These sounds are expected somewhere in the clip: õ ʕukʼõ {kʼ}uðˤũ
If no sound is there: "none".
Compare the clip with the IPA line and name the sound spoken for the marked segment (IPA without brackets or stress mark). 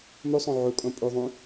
pʼ